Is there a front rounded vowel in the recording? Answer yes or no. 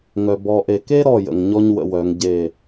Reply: yes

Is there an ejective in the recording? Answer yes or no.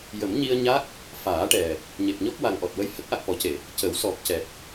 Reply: no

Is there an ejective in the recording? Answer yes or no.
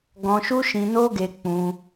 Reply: no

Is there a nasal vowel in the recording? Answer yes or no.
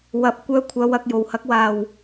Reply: no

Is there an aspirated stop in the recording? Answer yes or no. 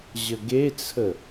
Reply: yes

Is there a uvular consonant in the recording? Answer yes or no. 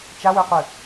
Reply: yes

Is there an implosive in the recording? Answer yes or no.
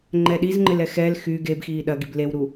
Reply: yes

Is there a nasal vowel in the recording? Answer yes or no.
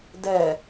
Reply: no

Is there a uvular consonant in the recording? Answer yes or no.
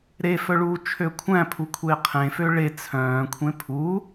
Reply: yes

